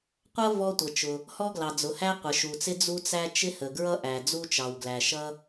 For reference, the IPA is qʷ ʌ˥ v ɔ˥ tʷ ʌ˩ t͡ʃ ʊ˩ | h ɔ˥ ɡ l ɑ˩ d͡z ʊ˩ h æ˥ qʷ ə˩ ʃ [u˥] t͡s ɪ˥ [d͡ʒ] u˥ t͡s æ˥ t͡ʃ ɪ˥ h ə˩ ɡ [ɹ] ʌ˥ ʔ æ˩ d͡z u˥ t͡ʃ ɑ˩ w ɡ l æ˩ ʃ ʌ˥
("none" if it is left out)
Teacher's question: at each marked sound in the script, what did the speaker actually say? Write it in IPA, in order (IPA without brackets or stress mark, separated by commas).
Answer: u˩, d͡z, ɹ